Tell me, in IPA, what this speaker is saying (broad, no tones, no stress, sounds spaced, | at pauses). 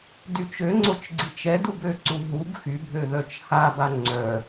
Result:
d y t͡ʃ ø ŋ͡ǀ o t͡ʃ ɡ͡ǀ i t͡ʃ ɛ d u b ø ǀ u ɦ u b x y bʱ ø ð œ t͡ʃ h a b a ŋ͡ǀ œ